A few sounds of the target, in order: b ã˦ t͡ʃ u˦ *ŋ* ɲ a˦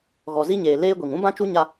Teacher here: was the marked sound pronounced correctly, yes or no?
no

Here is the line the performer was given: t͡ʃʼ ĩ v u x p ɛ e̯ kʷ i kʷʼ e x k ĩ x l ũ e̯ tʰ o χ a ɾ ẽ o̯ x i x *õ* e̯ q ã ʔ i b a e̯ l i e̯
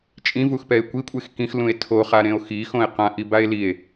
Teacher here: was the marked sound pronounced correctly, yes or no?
yes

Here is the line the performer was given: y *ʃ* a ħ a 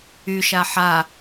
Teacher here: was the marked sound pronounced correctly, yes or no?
yes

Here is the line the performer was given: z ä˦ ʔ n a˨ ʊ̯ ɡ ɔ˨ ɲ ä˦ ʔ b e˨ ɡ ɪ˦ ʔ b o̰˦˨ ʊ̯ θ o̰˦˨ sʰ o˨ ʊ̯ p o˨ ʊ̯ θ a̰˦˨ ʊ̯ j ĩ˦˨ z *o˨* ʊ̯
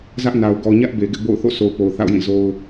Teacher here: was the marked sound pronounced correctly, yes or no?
no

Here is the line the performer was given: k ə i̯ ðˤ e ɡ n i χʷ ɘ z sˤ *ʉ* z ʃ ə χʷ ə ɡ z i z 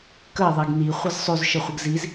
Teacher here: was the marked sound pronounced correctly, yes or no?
yes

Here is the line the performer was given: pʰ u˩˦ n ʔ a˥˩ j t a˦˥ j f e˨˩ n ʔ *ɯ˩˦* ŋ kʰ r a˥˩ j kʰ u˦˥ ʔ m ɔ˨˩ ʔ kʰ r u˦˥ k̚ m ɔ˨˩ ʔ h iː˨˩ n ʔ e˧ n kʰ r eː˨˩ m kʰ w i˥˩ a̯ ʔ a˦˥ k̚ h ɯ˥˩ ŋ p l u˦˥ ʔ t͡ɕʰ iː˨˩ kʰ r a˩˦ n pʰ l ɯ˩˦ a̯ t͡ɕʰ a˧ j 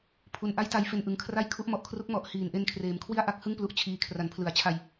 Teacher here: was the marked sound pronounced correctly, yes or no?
yes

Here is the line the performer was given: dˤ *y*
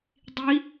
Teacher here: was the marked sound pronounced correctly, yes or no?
no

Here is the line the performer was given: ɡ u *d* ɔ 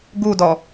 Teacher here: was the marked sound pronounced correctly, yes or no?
yes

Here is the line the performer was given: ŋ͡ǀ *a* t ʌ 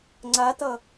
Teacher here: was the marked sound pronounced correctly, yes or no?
yes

